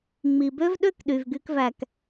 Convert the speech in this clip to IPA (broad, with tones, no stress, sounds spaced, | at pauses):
ŋ͡m i˨ b ø˦ v ɗ ø˦ k ɗ y˨ v ɡ y˧ k v æ˨ k